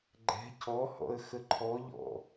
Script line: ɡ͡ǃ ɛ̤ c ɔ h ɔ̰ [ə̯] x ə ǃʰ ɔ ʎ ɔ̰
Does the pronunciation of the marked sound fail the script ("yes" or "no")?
no